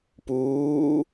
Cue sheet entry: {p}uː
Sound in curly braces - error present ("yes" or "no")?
no